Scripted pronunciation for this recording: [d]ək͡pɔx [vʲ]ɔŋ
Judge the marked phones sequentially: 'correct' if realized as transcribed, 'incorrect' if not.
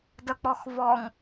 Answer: correct, incorrect

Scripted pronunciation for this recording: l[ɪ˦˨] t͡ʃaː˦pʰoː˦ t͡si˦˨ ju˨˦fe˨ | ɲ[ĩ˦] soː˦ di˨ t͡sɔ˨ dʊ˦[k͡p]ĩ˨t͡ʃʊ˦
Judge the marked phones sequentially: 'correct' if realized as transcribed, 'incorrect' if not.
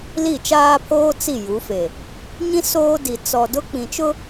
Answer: incorrect, correct, correct

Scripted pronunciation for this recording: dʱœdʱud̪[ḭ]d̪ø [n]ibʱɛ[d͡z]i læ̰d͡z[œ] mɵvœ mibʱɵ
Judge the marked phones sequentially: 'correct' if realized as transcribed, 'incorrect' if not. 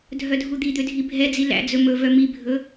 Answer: incorrect, incorrect, correct, incorrect

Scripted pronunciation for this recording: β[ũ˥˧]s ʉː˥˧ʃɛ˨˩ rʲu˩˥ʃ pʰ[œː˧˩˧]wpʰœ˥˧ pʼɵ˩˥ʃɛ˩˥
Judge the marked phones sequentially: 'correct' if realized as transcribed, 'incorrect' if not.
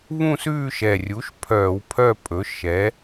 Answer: correct, correct

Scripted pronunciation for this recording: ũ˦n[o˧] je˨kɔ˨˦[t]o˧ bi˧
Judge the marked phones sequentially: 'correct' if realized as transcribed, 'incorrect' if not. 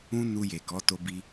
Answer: incorrect, correct

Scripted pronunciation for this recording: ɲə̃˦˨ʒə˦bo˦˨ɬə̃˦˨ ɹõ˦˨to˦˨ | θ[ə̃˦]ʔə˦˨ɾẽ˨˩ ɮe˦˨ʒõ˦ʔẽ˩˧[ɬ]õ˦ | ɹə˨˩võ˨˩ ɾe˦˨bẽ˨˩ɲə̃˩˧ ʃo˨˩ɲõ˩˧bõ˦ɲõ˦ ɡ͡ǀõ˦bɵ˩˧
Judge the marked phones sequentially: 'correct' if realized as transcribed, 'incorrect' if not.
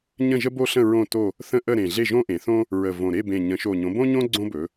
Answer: correct, incorrect

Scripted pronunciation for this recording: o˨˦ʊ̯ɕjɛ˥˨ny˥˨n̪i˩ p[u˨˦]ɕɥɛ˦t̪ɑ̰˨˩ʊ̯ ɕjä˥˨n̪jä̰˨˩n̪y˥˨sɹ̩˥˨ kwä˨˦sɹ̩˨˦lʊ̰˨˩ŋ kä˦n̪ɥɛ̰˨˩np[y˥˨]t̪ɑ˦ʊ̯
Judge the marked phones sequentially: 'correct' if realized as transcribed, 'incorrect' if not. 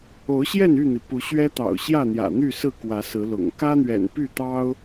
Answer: correct, correct

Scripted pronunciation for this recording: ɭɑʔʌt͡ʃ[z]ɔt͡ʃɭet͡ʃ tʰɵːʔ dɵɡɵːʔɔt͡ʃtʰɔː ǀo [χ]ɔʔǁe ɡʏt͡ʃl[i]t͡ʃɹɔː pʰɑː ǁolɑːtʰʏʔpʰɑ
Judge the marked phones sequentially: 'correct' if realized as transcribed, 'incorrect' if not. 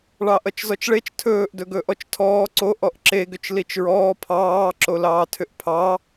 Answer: correct, incorrect, correct

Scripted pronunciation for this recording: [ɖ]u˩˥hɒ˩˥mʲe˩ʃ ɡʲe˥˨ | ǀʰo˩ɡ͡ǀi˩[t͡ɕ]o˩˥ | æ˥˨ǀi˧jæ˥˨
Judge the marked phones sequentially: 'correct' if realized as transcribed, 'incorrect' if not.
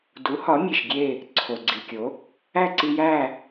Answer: incorrect, incorrect

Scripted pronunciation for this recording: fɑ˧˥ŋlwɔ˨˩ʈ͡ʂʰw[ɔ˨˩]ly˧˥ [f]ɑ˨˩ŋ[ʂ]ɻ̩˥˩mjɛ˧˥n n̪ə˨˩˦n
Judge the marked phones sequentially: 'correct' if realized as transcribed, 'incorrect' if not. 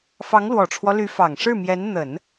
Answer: incorrect, correct, correct

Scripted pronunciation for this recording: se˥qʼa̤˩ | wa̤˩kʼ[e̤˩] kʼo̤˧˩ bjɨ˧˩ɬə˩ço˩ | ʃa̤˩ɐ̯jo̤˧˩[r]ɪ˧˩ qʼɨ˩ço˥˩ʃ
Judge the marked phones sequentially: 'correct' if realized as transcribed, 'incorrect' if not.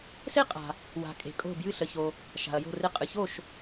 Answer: correct, correct

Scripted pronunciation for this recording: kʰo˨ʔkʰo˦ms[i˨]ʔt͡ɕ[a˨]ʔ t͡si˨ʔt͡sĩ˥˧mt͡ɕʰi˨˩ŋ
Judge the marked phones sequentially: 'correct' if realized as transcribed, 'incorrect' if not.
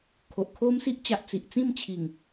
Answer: incorrect, correct

